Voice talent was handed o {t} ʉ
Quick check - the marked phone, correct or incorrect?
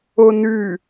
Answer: incorrect: n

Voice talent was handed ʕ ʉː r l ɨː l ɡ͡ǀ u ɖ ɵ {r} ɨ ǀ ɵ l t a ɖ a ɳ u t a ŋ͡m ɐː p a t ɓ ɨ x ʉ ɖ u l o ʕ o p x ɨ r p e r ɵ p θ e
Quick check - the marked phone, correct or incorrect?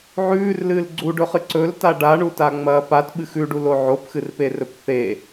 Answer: incorrect: χ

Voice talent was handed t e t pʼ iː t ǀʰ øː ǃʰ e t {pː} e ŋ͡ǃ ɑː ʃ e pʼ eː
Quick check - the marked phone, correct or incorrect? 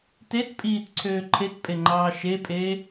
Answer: incorrect: pʼ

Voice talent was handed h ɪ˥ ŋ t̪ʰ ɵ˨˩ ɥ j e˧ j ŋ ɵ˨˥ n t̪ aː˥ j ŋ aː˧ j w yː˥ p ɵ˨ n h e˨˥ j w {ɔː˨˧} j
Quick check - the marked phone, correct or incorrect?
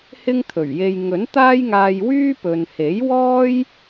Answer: incorrect: ɔː˥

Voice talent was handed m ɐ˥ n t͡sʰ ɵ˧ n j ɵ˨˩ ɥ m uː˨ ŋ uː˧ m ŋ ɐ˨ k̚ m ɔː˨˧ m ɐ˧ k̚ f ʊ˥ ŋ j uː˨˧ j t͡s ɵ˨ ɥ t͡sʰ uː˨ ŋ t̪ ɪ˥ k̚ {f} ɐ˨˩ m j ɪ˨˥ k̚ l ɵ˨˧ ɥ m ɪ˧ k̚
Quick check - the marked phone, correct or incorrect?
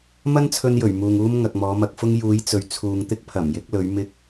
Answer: incorrect: pʰ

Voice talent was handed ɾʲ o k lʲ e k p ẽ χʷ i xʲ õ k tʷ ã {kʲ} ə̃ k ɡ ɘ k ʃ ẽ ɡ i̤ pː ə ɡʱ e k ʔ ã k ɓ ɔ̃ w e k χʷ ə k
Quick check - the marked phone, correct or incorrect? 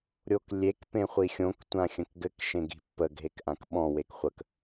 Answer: incorrect: xʲ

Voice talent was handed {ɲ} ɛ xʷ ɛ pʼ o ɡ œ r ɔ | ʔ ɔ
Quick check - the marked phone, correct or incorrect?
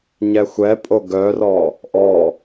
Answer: correct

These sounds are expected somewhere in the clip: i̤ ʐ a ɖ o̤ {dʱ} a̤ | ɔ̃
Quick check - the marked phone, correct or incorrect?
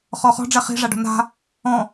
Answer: incorrect: n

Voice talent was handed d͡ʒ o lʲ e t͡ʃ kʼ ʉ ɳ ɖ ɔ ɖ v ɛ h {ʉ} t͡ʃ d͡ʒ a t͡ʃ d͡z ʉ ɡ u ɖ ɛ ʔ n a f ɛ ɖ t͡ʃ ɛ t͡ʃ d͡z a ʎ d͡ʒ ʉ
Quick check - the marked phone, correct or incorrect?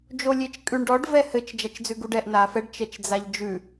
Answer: incorrect: ɘ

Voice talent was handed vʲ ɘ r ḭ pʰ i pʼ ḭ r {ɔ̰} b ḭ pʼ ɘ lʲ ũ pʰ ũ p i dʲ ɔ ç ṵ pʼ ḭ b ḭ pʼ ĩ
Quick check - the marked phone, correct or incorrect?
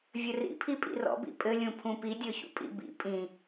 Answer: correct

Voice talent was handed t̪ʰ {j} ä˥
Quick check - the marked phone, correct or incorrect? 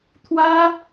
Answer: incorrect: w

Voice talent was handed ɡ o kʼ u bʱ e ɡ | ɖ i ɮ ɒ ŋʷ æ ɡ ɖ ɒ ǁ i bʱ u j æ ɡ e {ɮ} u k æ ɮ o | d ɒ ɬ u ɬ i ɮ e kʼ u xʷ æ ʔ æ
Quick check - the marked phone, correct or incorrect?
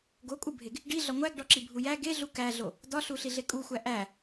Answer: correct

